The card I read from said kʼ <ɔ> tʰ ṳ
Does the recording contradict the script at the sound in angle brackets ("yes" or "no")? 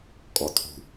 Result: no